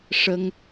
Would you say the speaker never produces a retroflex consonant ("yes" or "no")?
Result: no